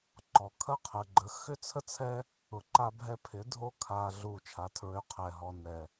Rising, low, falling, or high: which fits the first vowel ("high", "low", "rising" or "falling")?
low